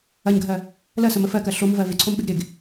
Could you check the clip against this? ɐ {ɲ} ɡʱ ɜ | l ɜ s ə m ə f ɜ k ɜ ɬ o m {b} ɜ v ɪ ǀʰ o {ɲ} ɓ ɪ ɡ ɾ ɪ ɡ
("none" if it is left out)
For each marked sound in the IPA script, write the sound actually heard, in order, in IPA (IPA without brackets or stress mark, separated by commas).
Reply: ɲ, v, m